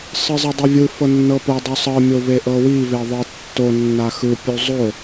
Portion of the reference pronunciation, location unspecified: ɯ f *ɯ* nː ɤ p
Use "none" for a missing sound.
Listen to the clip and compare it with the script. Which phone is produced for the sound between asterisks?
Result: ɤ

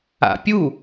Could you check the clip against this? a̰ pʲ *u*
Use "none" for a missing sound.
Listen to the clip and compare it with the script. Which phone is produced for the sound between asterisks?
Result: u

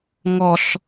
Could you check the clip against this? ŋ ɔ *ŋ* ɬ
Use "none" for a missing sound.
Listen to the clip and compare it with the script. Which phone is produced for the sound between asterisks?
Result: none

